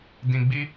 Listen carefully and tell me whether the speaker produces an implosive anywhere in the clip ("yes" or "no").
no